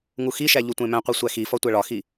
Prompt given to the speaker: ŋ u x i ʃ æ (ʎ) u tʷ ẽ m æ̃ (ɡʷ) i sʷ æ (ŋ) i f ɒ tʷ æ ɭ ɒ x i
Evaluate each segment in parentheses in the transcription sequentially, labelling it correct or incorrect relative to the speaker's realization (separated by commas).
correct, incorrect, incorrect